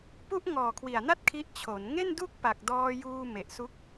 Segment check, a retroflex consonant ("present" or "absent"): absent